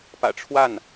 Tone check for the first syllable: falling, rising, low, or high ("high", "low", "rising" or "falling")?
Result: low